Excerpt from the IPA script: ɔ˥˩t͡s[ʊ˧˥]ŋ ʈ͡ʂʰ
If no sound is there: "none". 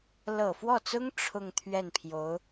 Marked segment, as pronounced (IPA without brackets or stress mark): ʊ˥